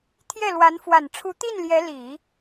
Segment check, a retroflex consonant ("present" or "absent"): present